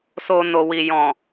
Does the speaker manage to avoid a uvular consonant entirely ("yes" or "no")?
yes